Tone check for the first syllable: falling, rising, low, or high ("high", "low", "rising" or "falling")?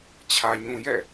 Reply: low